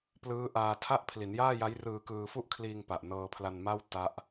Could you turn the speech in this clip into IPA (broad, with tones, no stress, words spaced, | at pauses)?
plɯː˦˥ʔaː˧tʰa˥˩ʔ pʰli˩˦njaː˥˩ja˦˥j rɯː˧kɯː˧fu˥˩ʔkʰliː˧ŋ pa˨˩ʔnɤː˧pʰla˧nma˥˩w ta˦˥ʔ